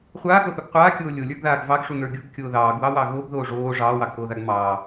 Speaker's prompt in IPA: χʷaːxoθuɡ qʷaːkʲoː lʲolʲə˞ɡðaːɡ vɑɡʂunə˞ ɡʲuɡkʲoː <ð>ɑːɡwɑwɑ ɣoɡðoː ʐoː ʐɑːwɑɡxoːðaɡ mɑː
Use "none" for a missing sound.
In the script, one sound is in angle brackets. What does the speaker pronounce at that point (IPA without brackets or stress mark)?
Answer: ð